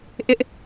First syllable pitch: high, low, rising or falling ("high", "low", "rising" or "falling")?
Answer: high